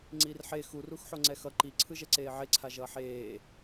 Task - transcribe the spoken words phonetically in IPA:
ŋ͡ǀ i r ħ e x u r u x ħ o ŋ͡ǀ ɛ x ʌ ǃ i ǀʰ ɯ ʒ ɛ ǀ eː ʕ e ǀʰ a ʒ ʌː ħ eː

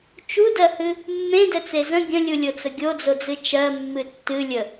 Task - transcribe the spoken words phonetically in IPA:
t͡ʃ u d ɜ h ɨ | mː ẽ d ɛ t͡s e z ə̃ ɡʲ ə̃ lʲ u lʲ o t͡s ə ɡʲ o d͡z o d͡z ɨ t͡ʃ ɜ mː ɨ tː ɨ lʲ ə

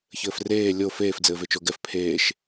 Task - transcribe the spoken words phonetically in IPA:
ç ɘː f r eː lʲ o f eː f d͡z ɘː v e t͡ʃ o ɡ ɛ f pʰ eː ʃ

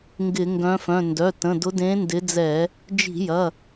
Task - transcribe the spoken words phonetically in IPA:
ŋ ɡ ɪ˧˩˧ ŋ ɡ œ̃˨˦ f œ̃˩˧˩ n d œ˩˧˩ t ə̃˩˧˩ d ʊ˨˦ d ẽ˨˦ n d ɪ˨˦ d͡z ɛ˧˩˧ | d͡ʒ i̤˧˩˧ j ɐ˩˧˩

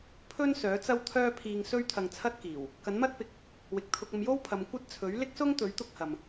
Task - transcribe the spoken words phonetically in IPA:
pʰ ɵ˥ n s œː˨˥ t͡s ɐ˥ w t̪ʰ œː˥ pʰ iː˧ ŋ s ɵ˥ ɥ t̪ʰ ɐ˧ ŋ t͡sʰ ɐ˥ t̚ k iː˨˩ w | k ɐ˨˥ n m ɐ˥ t̚ p ɪ˨ k̚ | w ɪ˨ k̚ t̪ʰ ʊ˧ k̚ ɐ˧ m j o˥ w pʰ ɐ˨˧ m kʷ ɐ˥ t̚ t͡sʰ ɵ˨˥ ɥ l ɪ˥ k̚ s ʊ˥ ŋ t̪ ɵ˨˥ ɥ t̪ ʊ˥ k̚ h ɐ˨ m

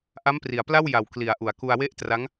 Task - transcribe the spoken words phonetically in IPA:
ʔ a˦˥ m p r i˩˦ a̯ p l a˥˩ w j a˨˩ w k l i˩˦ a̯ ʔ u˩˦ a̯ k u˧ a̯ w e˥˩ ʔ t r a˦˥ ŋ

